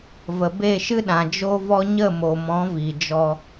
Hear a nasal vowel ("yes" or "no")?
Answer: yes